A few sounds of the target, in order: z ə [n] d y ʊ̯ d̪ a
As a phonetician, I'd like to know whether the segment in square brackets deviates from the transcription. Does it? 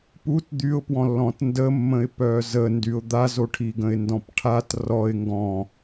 no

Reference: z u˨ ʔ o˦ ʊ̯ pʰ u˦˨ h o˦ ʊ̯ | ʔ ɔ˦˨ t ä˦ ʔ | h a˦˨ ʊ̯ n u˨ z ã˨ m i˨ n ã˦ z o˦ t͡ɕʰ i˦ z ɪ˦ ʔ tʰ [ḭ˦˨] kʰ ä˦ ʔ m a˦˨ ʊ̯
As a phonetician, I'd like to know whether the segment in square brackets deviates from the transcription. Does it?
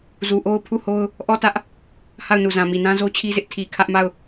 yes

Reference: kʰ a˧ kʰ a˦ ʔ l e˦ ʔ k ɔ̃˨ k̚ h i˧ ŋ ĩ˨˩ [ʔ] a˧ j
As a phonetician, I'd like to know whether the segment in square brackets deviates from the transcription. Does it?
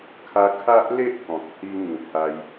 yes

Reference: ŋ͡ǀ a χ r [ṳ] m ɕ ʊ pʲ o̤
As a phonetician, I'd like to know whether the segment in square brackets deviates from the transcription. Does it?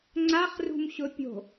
no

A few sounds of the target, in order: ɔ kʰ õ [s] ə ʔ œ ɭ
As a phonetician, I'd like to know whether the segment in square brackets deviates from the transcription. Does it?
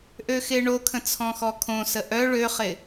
no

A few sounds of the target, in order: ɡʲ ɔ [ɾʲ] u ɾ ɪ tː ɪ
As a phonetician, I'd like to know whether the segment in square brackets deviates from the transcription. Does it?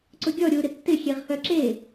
no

